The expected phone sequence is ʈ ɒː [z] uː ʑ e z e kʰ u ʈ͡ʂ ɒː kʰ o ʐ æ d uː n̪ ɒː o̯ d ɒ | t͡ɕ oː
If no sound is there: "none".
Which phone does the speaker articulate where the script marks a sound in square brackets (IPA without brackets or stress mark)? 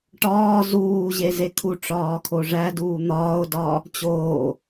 z